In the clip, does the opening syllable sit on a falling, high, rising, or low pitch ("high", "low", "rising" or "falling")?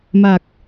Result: low